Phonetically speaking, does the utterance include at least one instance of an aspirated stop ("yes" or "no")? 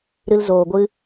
no